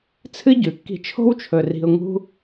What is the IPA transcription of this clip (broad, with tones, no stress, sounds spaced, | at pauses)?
t͡sʰ ɨ˦ ɟ ʉ˨ kː i̤˧ t͡ʃʰ o̤˦ w t͡ʃʰ ɵ˨ r i̤˨ ʊ̯ ŋ ṳ˧